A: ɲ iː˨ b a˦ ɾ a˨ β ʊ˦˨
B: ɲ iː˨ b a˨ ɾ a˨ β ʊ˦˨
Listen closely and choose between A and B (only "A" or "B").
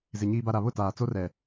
B